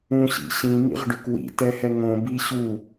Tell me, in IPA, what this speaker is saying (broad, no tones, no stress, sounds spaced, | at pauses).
ũ ɕ ḭ ɕ ĩ m ḭ ʁ ɖ ʏ k w ḭ t ɛ h ɛ ŋ õ b i ɕ u